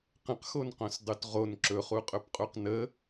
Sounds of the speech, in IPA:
q ə̃ q x o n q õ s dˤ ʉ t ʁ o n ǁ ɵ χ u qʼ ɵ p qʼ u q n ə

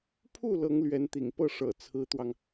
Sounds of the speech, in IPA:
pʰ u˥˩ l ɤ˧˥ ŋ l ɥ ɛ˧˥ n t̪ ḭ˨˩ ŋ p ɤ˥˩ ʂ ɤ̰˨˩ t͡sʰ ɹ̩˧˥ t̪ w ɑ˧ ŋ

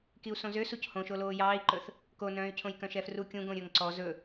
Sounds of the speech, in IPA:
k i u̯ s õ z ø s u c h õ ʃ o l oː j ɑː i̯ ǃ ɵ θ | k o n œ̃ː y̯ cʰ õ j k œ̃ ʃ ɛ f r u kʲ ũ ɡ õ ɾʲ ɵ ŋ ǀ ɔ z ɵ

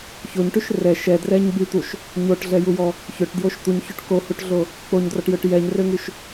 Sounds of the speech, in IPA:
ç o ɲ ʈ y ʃ r ɛ ʃ ɛ d r ɛ ɲ b y t̪ u ʃ | ɲ o ʈ ɮ ɛ j u j ɔ | ç ø ʈ d j o ʃ t̪ u ɲ ç o ʈ k o h u ʈ ɮ o | k͡p o ɲ d r ɔ ʈ j ø ʈ j ɛ ɲ r ø ŋ y ʃ

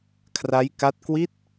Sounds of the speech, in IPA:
kʰ r a˦˥ j k a˦˥ t̚ k w i˦˥ t̚

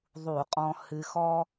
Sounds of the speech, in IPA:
ðˤ u˧˩˧ qʼ ɔ̃˧ h ɨ˧ x ɔ˥

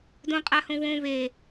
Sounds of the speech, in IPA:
d õ qʼ a h õ w õ β e

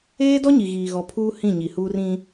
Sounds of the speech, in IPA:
eː˦ d ɔ˦ ɲ i˨ ɣ iː˨ ɣ ɔ˨ pʰ uː˦ h ĩ˦˨ ɲ i˨ h uː˦ r ĩ˦

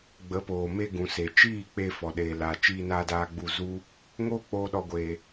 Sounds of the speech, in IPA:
ɡ͡b ə˨˦ p oː˨ m e˧ ɡ ũ˨ s e˨ t͡ʃ iː˦˨ k͡p e˧ f ɔ˨ ɗ eː˨ l aː˨ t͡ʃ iː˧ n aː˧ d aː˧ ɡ͡b u˧ z u˦ | ŋ oː˦ k͡p oː˧ ɗ ɔ˧ ɡʷ eː˧

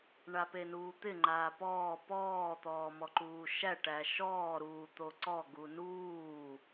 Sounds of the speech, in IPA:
ɳ a p e n uː t̪ ɪ ŋ͡ǃ aː p ɔː p ɔː t̪ ɔː m ɔ ǃ uː ʃ æ ʈ æ ʃ ɔː ɾ uː t̪ o ǀ ɔ ɡ u n uː

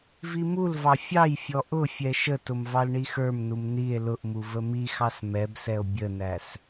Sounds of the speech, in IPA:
v i m u l v ɑ fʲ ɑ j fʲ ɔ ʔ ʊ fʲ ɛ ʃ ə t ʊ m v ɑ l ɳ i x ə˞ m n u m n i e̯ l ʊ ʔ m u v ə m i x ɑ s m ɛ b s ɛ o̯ bʲ ə n æ s

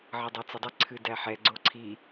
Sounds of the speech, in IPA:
ʕ ʌ dˤ e t͡s ə dˤ ɨ ǀʰ ɨ d æ ħ ɛ ɡ͡ǀ o ǀʰ i

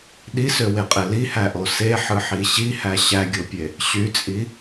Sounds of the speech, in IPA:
ɗ i s ø w e qʼ e l i h æ ʔ o s e ħ ɯ ħ i ɕ i h æ ɕ æ ɡʲ o pʲ e | ɕ y t͡sʼ i

